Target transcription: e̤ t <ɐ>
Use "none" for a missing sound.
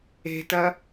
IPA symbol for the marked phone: ɐ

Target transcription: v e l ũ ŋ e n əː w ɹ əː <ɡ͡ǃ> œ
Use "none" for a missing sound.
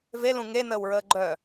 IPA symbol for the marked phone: ɡ͡ǃ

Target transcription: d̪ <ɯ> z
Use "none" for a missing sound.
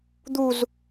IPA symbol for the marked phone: u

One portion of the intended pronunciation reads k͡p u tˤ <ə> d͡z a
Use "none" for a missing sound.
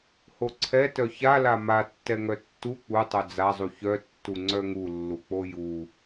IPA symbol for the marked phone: œ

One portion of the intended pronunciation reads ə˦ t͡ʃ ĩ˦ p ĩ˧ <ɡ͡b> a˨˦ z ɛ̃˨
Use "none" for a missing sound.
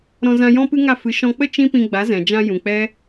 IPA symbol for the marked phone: ɡ͡b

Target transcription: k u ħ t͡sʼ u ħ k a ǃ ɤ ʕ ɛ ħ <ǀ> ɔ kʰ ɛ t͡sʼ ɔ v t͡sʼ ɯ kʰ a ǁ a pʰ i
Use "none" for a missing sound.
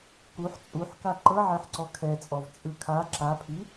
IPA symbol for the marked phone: ǀ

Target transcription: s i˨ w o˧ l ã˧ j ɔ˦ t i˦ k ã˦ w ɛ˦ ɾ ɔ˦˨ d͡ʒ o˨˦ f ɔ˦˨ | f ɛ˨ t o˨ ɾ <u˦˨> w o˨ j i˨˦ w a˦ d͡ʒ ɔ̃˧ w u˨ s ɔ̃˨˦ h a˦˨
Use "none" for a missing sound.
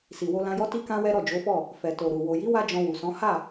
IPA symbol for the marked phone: u˨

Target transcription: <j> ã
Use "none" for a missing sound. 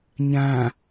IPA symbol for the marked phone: ɲ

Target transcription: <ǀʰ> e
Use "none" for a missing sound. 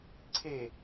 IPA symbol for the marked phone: ǀʰ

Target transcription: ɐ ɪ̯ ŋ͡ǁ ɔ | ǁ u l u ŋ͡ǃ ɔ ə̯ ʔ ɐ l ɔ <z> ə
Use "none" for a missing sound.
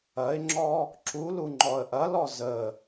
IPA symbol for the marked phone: z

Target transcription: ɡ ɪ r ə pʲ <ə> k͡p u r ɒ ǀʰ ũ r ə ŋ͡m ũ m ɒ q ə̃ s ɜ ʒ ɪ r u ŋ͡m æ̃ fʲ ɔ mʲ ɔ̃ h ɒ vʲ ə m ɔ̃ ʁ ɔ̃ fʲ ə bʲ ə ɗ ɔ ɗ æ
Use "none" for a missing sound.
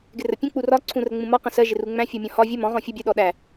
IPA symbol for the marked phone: ə̃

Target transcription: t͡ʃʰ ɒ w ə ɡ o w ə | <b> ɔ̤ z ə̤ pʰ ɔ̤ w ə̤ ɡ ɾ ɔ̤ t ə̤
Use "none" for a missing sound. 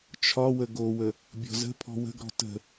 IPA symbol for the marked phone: bʲ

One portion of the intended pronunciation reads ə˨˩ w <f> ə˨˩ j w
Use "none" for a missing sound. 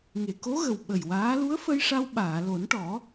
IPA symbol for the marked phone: ɓ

